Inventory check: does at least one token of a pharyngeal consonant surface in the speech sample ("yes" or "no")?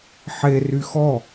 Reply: yes